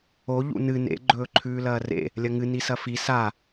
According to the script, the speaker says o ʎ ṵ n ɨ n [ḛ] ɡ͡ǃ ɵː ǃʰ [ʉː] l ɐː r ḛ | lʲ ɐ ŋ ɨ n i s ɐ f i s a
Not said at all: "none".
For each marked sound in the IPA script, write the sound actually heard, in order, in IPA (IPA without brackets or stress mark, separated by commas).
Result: ḛ, ʉː